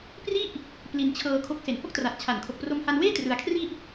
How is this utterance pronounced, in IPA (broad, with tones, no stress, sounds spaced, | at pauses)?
p r i˥˩ ʔ | p l i˧ n t͡ɕʰ ɤː˧ kʰ o˦˥ k̚ s e˩˦ n h o˥˩ k̚ t r a˨˩ t̚ t͡ɕʰ a˨˩ n kʰ o˨˩ k̚ p r o˧ m h a˧ n w eː˥˩ t r ɯ˧ a̯ kʰ r i˥˩ ʔ